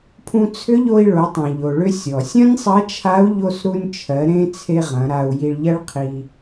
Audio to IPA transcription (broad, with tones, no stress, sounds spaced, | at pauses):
pʰ ũ˧ t͡sʰ ʏ˧˥ ʎ o˧ i̯ ɭ o˩˧ tˤ ĩ˩ ʎ o˩ ɭ ʏ˧ sʲ ɔ˩ sʲ ɐ̃˥ nʲ sˤ ɐ˧˥ t͡ʃʰ a˧˥ u̯ ʎ o˧ s ɾ u˧ nʲ t͡ʃʰ ɜ˩˧ ɾ ẽ˧ t͡sʰ e˧ ʁ ɐ̃˩˧ ɾ a˧ u̯ j i˧ ɭ ʎ ɐ˥ ɭ qʰ i˧